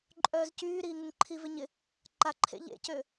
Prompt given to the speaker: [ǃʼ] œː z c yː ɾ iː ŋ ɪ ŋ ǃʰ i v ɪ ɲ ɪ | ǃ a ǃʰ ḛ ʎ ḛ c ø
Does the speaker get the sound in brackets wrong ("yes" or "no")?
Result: no